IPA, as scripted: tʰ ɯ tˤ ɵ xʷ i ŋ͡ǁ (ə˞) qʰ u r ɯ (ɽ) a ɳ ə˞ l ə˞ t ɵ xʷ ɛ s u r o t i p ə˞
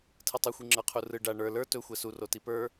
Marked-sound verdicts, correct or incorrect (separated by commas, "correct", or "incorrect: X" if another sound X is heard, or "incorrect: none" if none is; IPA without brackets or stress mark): correct, incorrect: ɖ